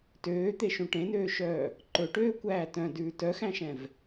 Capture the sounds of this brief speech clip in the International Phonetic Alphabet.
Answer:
t øː t̪ e ʃ ũ ʈ ẽ n øː ʃ œː | ǃ ɵ ʈ øː kʷ æː t œ̃ d ʉː t œ x æ̃ ʃ ɛ̃ v

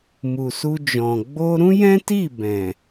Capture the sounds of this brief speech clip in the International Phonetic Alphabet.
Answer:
m u˨ s u˧ d͡ʒ ɔ̃˨ ɡ͡b o˧ ɾ ũ˦ j ɛ̃˦ t i˦˨ b ɛ̃˨

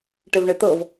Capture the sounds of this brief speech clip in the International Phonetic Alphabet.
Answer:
ʈ ɪ v ɳ ɪ t̪ ɤ v

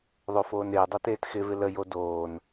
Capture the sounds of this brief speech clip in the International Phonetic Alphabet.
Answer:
ðˤ o f oː n ɪː dˤ o t eː t x ɪ v ɪ l ə j o d oː n

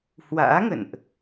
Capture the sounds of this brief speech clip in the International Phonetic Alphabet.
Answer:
h w a̰ː˧˥ ŋ ə̰˧˨ n ʔ

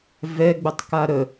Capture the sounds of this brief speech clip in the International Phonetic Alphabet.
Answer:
v ɛ ɡ͡b ə tˤ k a ɾ ə

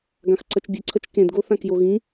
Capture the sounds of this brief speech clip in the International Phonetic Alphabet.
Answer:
ɡ ã x ǀ ʌ t͡ʃ bʲ ɯ ǀʰ ʌ t͡ʃ k ẽ d ɡ o θ ã k j o ɣ ĩ

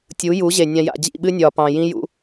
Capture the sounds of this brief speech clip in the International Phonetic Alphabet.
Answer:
tʲ u˨˦ j u˨˦ ʑ e˨ nʲ ã˨ j a̰˨ d͡ʑ ḭ˦˨ ɓ ɨ˦ nʲ ɒː˨ p ɑ̃˨ j ĩ˦ j ṵ˦

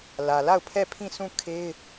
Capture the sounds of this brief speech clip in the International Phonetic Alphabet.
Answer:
l ä˨ l a˦˨ ʊ̯ pʰ ɛ˦˨ pʰ ĩ˦˨ sʰ ũ˦˨ kʰ e˦ ɪ̯

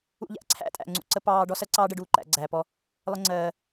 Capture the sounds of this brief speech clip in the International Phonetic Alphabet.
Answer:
ṵ˧ ʎ æ̰˨ ǀʰ æ̰˦ tʼ æ̰˨ ŋ͡ǀ ṵ˨ ǀ ə˧ p ɑː˧ ɖ ɔ˦ s ɜ˦ ǀ ɑː˦ ɖ ə˧ ɖ uː˦˨ ǃ æ̰˨˦ ɡ͡ǀ æː˨ p ɔ˦ | lˠ ə˦ ŋ͡ǀ ɜː˧

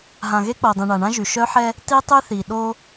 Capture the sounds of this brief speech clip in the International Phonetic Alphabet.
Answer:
ɦ ã˨ ɣ e˦ k͡p o˨ dˤ ĩ˨ ɳ a˨ ɳ ã˦ ʒ y˨ ʃ œ˦ ħ ɛ˦ | t i˦ tˤ y˦ θ i˨ ɗ o˦

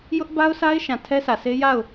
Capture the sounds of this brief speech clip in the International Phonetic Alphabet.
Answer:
j ʊ˦ ʔ b a˦ ʊ̯ s a˦ ɪ̯ ʃ ã˨ tʰ ɛ˦ s ä˨ sʰ e˦ j a˦˨ ʊ̯

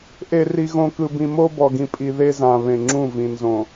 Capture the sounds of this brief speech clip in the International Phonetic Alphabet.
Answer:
ʔ e˨ r i˨ ɣ õ˨ k ɯ˨ b ĩ˨ m o˦ b ɔ˨ ɡ ĩ˨ pʼ i˨ ð e˦ z ã˨ β ẽ˨ ŋ͡ǁ ũ˦˨ v ĩ˨ n z õ˨

